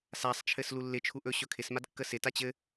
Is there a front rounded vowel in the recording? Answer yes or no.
no